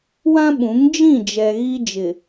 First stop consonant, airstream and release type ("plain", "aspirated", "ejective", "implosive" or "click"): implosive